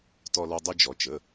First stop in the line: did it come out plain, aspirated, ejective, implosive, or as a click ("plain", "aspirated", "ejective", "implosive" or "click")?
plain